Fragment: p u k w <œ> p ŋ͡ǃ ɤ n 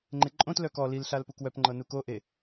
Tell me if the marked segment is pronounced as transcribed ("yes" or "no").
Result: yes